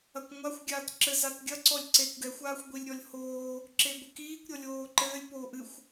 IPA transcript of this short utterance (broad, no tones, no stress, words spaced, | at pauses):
ɐkʷŋʷaxʷ ɡʲaːtǁɘ zatɡʲɐ ǀɔlʲǀekʷɡɛxʷ aːxʷɡʷilʲɾʲɔlʲhoː | ǁeɡʷɨkiːkʷ ɾʲɔlʲoːǃɘːlʲ poːʔɨxʷ